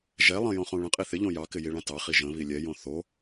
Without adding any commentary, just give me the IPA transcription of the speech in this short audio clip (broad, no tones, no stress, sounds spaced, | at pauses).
ʒ ɛ lˠ ə̃ j õ χ õ ɭ ə̃ qʼ i θ ɪ ʎ õ j ɑ k ɪ j i ɭ ã t ɑ χ i ʒ ə̃ β i lʲ ɛ j õ θ o